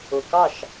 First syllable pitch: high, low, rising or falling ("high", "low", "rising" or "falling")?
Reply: low